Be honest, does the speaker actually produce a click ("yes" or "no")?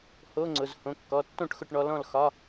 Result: yes